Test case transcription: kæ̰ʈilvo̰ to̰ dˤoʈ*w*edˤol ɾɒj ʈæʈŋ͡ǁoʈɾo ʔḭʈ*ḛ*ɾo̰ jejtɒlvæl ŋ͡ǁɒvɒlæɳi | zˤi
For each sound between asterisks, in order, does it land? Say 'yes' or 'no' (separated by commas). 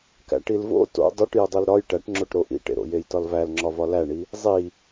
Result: no, yes